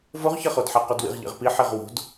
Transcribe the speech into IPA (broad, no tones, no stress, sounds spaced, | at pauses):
v o ʁ ç ɐ χ o d ħ a q o d w ḭ ʁ ʎ ḛ ʁ p i ħ e ʁ w o̤ d